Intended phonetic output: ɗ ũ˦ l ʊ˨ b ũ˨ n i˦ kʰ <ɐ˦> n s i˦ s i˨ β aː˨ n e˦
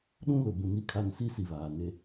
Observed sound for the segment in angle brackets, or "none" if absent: a˦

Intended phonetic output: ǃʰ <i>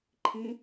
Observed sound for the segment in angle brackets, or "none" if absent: ĩ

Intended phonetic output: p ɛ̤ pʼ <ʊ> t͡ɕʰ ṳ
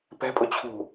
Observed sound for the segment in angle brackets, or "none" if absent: ʊ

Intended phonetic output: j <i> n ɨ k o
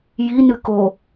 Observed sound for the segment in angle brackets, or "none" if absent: i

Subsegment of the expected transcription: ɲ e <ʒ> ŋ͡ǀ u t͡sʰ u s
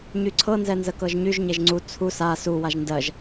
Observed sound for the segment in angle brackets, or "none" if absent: ʒ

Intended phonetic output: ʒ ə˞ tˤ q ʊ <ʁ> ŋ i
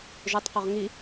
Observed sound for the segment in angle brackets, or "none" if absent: ʁ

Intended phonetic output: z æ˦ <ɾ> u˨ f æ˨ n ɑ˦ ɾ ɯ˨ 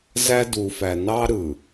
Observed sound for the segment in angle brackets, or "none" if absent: d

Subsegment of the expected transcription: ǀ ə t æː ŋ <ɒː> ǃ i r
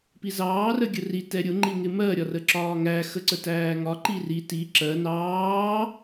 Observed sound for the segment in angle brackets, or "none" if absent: ɒ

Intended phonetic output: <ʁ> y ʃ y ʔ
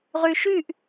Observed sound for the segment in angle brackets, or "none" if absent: ʁ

